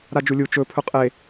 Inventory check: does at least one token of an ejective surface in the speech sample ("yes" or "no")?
yes